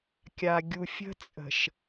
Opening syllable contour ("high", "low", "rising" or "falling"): low